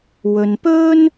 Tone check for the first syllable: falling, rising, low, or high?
low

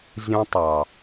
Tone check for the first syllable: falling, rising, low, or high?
high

